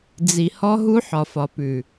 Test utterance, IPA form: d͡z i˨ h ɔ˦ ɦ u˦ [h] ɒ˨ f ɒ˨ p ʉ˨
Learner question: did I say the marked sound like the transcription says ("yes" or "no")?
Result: no